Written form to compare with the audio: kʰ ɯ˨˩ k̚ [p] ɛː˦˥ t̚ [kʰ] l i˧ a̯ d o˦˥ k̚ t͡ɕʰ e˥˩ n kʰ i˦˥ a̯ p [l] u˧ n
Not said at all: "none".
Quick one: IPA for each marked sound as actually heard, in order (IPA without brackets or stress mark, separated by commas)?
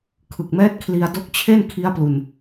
m, kʰ, l